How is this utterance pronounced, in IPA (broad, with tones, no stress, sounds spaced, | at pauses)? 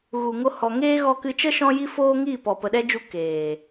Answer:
ɣ u˨ ŋ o˧ h ɔ˨ ŋ eː˦ ɣ ɔ˧ k ɨ˧ t͡ʃ ə˦ ʃ ɔ̃˦ j i˦ f oː˦ ŋ iː˦˨ p ɔ˨ p ə˨ ɗ ɛ˦ d͡ʒ u˧ k eː˨